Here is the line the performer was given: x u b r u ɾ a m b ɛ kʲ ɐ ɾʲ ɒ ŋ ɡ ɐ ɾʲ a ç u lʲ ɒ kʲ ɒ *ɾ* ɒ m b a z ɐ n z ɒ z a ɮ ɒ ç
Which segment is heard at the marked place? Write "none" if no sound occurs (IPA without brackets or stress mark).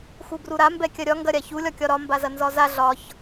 ɾ